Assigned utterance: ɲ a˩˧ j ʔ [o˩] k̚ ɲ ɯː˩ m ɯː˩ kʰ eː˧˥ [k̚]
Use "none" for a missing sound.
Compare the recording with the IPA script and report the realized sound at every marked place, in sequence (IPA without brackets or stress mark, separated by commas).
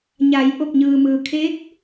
o˧˩, k̚